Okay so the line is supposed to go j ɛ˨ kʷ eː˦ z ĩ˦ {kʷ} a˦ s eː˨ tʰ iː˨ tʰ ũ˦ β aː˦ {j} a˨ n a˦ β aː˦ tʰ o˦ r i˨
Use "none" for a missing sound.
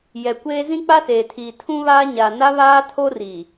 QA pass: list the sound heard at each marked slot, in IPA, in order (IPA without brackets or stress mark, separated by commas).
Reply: k͡p, ɲ